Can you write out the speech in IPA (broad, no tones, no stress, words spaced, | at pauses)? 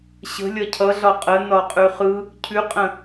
ɕə̤ lʲɒcʰʌɮɒ qʼə nɒqʼʉχɯ | cʰʉqʼə̃